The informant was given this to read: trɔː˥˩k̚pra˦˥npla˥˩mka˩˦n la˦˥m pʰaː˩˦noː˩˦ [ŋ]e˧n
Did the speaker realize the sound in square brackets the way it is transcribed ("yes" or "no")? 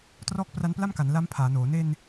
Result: no